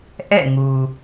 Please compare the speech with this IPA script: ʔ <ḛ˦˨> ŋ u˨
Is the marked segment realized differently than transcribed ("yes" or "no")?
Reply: yes